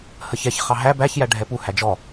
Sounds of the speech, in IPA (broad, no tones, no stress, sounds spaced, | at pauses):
h ə ç ɛ ç χ ɑ ɦ æ b æ ç j æ ɖʱ ɛ p u h æ d͡ʒ ɔ